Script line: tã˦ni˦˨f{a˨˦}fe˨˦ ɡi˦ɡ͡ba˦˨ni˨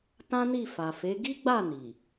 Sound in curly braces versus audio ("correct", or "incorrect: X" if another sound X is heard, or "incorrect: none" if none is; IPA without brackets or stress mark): incorrect: a˨